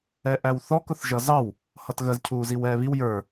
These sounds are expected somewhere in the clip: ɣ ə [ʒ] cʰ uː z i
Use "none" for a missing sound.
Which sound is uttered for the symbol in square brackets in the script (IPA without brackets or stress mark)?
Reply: z